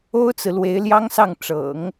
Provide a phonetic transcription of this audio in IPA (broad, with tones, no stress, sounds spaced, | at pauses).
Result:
o˥ ʊ̯ t͡s ɹ̩˨ l w e˧˥ ɪ̯ l j ɑ˥ ŋ s ɑ˥˩ ŋ ʈ͡ʂ ɤ̰˨˩˦ ŋ